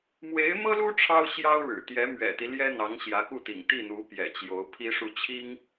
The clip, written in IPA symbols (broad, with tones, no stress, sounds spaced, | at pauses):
m w e˧˥ ɪ̯ m ɤ˥ l u˥ ʈ͡ʂʰ ɑ˥ ʊ̯ ɕ j ɑ˥ ʊ̯ ɻ ɻ̩˨˩ t̪ j ɛ˧˥ m ɥ ɛ̰˨˩ t̪ i˦ l j ɛ˥ n̪ ɑ˧˥ ŋ ɕ j ä˧˥ k u˥˩ t̪ ḭ˨˩ ŋ t̪ i˥˩ n̪ u˧˥ p j ɛ̰˨˩ t͡ɕ j o˧˥ ʊ̯ pʰ i˥ ʂ u˥˩ t͡ɕʰ i˥ ŋ